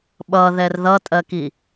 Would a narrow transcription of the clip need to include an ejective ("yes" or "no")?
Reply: yes